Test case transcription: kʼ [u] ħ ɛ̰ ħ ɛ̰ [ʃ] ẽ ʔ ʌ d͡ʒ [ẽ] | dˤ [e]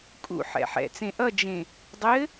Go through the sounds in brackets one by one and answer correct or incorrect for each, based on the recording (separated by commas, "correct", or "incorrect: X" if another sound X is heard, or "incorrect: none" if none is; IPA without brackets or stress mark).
incorrect: ṵ, incorrect: t͡s, correct, incorrect: ɘ